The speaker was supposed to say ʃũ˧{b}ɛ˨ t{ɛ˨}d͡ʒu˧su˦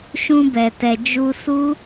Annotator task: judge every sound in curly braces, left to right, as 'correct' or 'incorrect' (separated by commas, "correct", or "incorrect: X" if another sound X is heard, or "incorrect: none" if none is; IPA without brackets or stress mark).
correct, correct